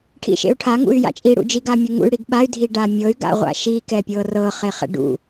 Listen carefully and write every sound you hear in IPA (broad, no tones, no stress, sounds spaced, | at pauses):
ʈʰ ḭ ʃ ḛ u̯ ʈʰ a ŋ ṵ y̯ j a̰ t͡ʃʼ i ɽ ṵ d͡ʒ i ɡ a mʲ u ŋ ṵ y̯ ɽ i ɡ ɓ a y̯ dʱ i ɖ a mʲ ɤ y̯ ɡ a̰ ʁʷ a̰ ʃ i k ɛ pʲ ɤ r ɤ χ e χ ɛ̰ ɖ ṵ